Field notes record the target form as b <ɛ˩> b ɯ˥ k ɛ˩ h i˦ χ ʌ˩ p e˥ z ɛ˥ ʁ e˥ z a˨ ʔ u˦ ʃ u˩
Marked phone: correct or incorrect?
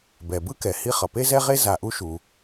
correct